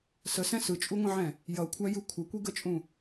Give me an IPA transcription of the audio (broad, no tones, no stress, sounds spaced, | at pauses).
s ə s ɛ̃ s ɯ t͡ʃʼ u ŋʷ ə̃ ʕ ɛ̃ | j ʌ kʷʰ æ j ɯ kʷʰ ʌ kʷ i ɡ ə t͡ʃʼ ũ